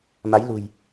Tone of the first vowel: rising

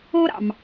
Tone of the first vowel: high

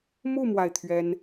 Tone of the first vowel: falling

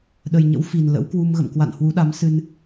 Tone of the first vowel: low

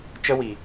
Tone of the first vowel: high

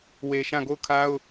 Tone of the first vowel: low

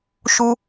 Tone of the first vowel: high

